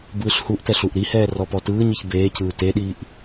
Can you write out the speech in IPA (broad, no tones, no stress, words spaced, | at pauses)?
bɯːɬhuʔtɛɬ uʔɾihɛː rɔpɔtɯːɲiç beːcɯː teɗiːʔ